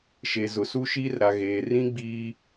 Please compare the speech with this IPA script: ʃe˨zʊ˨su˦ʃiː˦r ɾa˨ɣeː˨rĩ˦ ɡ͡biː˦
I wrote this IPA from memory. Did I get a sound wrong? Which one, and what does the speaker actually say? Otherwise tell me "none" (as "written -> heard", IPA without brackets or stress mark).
none